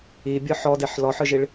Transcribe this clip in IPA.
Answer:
i bʲ ɯ ħ ɔ d e ħ l ɔ ħ ɯ ʒ i ɭ

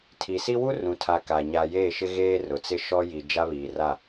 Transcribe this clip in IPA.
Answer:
tʰ i˨ s i˦ w u˦ r ũ˨ tʰ a˨ k a˨ ɲ a˨ j eː˦˨ ʃ ɪ˦ ɣ eː˦ r ʊ˨ t͡s ɪ˦ ʃ ɔ˦ j i˨ d͡ʒ a˦ β iː˨ r a˦˨

